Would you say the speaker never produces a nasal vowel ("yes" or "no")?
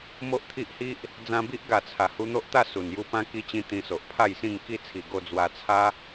no